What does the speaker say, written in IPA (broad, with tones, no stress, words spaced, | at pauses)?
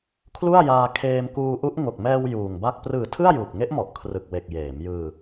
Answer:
kʰlu˥˩a̯jaː˧ kʰeː˧mkuː˧ʔu˦˥ʔ ŋo˨˩k̚mɛː˧w juː˨˩ŋba˥˩k̚ prɯː˨˩ tʰɯ˥˩a̯juː˨˩p̚ŋe˦˥ʔmɔ˨˩ʔ kʰrɯ˨˩k̚we˨˩k̚ jeː˩˦mjɯː˧